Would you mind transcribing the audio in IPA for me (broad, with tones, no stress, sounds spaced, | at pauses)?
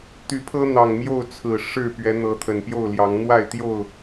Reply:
t̪ y˨˦ pʰ ɤ˦ n̪ ɑ˨˩ ŋ m j o˥˨ ʊ̯ t͡sʰ ɹ̩˨˩ ʂ ɻ̩˥˨ p ɥ ɛ˨˦ n̪ ɤ˨˦ t̪ʰ ə˨˩ n p j o˥˨ ʊ̯ l j ɑ˨˦ ŋ n̪ w a˥˨ ɪ̯ t̪ j o˥˨ ʊ̯